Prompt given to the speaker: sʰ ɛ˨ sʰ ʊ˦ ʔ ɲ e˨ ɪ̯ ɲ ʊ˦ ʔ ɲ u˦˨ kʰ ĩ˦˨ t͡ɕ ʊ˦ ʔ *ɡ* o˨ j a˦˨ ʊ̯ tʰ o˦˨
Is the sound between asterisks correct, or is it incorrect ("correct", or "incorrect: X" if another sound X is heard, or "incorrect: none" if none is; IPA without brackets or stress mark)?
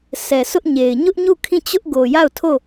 correct